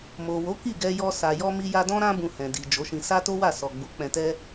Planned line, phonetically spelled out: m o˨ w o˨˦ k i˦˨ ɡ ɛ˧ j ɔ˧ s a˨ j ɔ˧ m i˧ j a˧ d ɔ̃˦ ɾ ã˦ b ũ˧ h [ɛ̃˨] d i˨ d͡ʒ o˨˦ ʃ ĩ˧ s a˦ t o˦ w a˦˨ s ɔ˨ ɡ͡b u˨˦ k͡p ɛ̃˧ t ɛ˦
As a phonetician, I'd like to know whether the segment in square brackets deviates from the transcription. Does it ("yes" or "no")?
no